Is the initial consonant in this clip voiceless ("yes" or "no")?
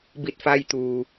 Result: no